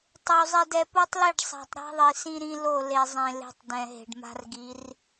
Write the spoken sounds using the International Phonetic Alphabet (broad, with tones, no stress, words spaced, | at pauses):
tˤo˨ zˤe˨dɛ˨ po˦tˤli˦˨ɖ sˤa̤˨tˤɾa̤˦ðˤi˨ sĩ˦ɾĩ˦ lo˦˨ le˨zˤẽ˨ le̤˦tˤ dɛ̃˨ɦe̤˨ɖma̤˦r ɡi˨˦r